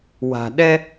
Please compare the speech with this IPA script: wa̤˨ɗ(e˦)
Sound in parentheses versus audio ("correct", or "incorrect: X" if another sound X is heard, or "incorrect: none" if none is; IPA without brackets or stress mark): incorrect: ɛ˦